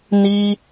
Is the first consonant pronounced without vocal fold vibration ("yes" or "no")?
no